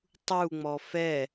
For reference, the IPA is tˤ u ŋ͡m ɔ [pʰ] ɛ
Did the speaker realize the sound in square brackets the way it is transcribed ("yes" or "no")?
no